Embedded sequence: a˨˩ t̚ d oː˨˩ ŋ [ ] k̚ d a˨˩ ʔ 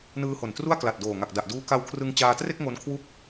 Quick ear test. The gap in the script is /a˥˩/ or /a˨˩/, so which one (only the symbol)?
a˨˩